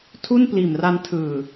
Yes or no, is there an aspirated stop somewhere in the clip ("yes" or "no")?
yes